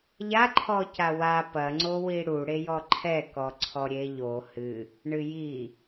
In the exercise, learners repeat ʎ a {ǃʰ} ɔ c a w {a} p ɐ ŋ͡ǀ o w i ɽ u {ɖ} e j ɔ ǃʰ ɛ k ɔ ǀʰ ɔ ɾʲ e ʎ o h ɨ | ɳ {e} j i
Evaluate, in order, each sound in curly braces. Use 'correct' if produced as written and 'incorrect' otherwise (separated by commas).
correct, correct, incorrect, incorrect